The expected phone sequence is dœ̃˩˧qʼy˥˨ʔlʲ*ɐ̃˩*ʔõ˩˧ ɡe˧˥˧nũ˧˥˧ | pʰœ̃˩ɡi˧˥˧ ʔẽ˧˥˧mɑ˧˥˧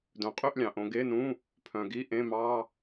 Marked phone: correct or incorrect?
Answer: incorrect: ɑ̃˩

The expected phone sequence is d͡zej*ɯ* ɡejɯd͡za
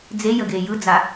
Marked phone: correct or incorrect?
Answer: incorrect: ə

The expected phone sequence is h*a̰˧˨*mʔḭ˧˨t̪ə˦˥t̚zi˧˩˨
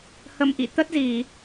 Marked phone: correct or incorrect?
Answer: incorrect: ə̰˧˨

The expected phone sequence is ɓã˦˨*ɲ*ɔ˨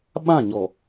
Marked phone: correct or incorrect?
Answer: correct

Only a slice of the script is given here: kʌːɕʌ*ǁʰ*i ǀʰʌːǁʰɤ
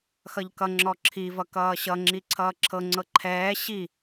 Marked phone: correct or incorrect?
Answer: incorrect: ŋ͡ǁ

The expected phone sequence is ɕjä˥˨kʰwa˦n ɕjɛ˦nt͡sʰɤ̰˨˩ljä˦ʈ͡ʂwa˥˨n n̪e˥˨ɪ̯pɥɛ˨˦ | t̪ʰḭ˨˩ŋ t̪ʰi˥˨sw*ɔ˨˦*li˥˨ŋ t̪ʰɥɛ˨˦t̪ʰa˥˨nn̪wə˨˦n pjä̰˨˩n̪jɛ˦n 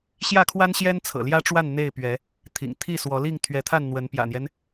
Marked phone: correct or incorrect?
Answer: correct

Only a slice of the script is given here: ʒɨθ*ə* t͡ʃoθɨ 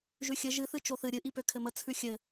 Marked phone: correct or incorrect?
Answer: incorrect: ɨ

